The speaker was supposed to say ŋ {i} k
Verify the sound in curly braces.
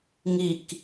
correct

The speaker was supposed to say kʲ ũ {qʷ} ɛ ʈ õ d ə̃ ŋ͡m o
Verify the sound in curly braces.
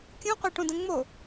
correct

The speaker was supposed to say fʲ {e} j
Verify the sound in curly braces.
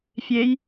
correct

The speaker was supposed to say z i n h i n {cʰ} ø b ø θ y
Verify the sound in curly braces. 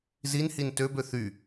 incorrect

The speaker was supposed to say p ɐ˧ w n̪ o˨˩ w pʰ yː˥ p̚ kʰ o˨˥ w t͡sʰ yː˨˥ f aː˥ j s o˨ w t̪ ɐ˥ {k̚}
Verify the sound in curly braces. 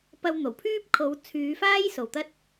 incorrect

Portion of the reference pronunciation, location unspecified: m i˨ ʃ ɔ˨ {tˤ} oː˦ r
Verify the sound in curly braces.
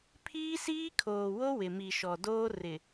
incorrect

